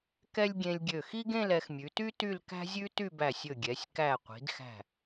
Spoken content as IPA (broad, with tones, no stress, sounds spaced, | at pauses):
k ɛ˥ lʲ ɡʲ ẽ˧ lʲ ɡʲ ø˧˩ x i˥ ɡ ẽ˥˧ l ɛ˩˧ x mʲ ʉ˩˧ t y˥ t y˥˧ l k æ̤˥ zʲ ʉ˥ t y˥˧ b æ˧˩ sʲ ɵ˧˩ ɡʲ ɛ˩˧ sʲ k æ˧˩ qʷ i̤˩˧ d x æ̤˧˩